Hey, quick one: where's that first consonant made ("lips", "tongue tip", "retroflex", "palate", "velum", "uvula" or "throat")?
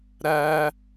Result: tongue tip